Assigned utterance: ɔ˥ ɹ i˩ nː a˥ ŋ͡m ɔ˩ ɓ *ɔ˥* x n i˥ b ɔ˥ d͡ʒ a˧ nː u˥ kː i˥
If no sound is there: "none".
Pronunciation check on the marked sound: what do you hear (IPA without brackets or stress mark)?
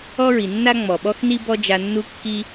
ɔ˥